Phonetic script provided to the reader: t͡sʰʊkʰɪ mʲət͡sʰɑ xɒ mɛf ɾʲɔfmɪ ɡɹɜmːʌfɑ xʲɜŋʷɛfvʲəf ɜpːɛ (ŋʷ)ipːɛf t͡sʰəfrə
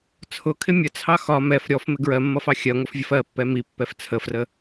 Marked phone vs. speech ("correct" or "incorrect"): incorrect